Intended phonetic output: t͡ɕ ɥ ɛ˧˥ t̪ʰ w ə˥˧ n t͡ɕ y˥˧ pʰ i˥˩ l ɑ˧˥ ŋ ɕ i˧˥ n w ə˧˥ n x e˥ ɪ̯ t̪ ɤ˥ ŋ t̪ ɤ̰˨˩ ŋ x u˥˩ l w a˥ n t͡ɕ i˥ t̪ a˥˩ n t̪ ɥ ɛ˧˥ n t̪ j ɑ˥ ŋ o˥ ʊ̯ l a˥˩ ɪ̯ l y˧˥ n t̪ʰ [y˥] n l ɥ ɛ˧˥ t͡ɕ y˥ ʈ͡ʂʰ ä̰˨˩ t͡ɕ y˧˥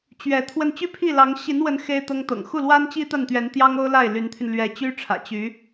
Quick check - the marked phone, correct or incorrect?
incorrect